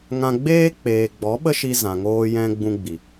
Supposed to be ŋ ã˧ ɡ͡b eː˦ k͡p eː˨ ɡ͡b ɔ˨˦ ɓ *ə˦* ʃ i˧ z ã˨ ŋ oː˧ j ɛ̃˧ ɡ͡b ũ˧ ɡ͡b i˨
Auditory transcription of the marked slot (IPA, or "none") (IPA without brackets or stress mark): ə˦